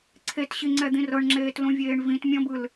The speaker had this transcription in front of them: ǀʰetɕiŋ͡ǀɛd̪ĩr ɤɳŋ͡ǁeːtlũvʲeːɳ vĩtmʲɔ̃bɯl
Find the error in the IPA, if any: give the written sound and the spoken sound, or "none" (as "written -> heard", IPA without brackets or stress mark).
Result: none